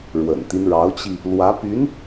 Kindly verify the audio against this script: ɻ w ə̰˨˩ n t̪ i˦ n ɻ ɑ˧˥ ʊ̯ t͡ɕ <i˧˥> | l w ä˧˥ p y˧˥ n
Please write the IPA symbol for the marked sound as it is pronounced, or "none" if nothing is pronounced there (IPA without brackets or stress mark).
i˧